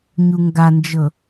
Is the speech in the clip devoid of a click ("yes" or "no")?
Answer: yes